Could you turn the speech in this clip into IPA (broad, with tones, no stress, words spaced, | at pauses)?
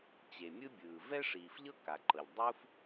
t͡ɕe˩mʲɯ˥bʲɯː˩ vɛ˥ʂiː˩fʎɤ˥ ka˩ǃɤ˩ʎ dˤu˥f